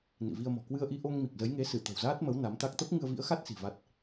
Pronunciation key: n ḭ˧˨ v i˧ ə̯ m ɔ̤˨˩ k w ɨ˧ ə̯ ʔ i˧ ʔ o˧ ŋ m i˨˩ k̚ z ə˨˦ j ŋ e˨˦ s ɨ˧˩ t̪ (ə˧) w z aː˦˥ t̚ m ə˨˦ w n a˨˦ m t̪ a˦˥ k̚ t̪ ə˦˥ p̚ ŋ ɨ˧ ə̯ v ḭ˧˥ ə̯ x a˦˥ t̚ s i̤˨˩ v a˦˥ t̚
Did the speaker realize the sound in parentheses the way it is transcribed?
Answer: no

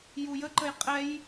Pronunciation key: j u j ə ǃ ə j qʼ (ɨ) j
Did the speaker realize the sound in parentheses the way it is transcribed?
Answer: no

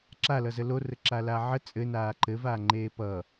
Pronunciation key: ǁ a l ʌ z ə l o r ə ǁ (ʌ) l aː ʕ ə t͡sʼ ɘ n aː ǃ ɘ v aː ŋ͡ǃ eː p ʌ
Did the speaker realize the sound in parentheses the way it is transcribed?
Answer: no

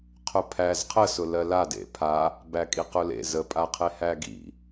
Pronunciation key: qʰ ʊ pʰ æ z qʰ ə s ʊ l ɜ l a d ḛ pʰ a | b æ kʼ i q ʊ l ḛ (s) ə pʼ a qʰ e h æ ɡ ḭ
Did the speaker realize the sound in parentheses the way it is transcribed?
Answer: no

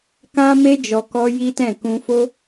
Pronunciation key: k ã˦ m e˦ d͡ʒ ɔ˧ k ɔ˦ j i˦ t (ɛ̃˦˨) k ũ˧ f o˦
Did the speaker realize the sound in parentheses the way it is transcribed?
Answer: yes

